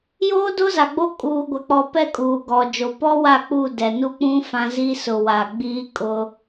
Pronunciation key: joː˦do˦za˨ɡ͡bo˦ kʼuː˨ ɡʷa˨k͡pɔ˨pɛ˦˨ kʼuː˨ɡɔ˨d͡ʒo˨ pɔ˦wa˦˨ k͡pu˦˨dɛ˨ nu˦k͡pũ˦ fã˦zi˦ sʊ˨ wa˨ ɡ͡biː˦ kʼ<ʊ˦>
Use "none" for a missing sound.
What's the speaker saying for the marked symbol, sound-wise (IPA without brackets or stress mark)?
ʊ˦